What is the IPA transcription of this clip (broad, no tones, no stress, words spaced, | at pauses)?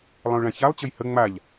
lˠə̃ʊ̯ɭãçalˠ t͡ɕəjhə ŋ͡maʎ